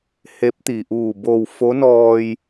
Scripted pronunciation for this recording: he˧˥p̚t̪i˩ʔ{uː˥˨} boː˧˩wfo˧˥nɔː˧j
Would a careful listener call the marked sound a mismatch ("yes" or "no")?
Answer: yes